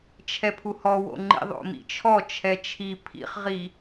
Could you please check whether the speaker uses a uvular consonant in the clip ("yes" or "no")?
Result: yes